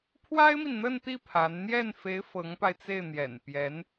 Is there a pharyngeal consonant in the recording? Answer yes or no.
no